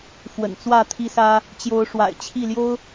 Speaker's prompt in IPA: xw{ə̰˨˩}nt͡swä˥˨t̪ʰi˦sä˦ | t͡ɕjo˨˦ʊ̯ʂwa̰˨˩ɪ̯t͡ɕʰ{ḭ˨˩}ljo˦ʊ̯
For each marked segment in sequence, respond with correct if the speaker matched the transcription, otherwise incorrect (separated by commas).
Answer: correct, incorrect